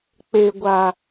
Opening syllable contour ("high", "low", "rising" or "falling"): low